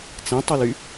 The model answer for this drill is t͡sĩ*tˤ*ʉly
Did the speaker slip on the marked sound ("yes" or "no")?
no